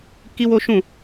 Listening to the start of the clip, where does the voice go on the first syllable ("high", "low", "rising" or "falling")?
high